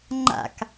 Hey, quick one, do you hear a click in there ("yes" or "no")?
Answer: yes